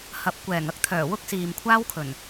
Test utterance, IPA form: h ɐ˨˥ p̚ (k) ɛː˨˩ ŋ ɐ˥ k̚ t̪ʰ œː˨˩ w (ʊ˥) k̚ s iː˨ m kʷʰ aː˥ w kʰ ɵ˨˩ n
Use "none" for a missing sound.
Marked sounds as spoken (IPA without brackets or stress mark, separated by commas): kʷ, ʊ˥